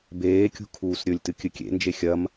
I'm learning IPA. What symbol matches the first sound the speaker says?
b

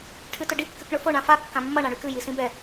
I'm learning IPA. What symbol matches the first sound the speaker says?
ʈʰ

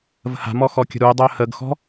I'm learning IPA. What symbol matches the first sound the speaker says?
v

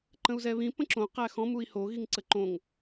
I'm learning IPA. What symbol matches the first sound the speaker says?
ǃ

